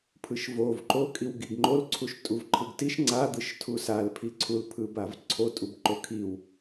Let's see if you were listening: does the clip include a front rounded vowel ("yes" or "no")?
no